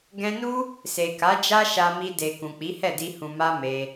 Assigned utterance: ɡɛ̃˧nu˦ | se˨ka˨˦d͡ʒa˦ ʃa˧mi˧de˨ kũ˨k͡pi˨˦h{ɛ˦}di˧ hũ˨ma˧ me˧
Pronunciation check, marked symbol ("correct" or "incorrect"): incorrect